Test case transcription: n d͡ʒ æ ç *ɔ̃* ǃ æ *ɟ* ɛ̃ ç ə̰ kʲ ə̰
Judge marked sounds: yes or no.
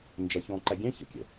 yes, no

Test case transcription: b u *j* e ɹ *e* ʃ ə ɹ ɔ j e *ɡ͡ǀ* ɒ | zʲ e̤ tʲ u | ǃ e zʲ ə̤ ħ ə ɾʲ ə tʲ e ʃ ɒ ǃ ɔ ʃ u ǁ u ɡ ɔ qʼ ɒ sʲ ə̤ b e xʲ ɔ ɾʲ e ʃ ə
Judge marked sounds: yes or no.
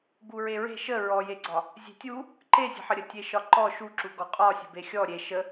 no, no, yes

